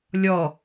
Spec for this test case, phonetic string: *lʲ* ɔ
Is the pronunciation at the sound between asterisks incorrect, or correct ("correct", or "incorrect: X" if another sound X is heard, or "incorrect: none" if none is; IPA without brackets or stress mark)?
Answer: correct